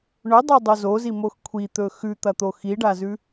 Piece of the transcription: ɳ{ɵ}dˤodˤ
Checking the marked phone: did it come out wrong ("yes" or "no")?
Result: no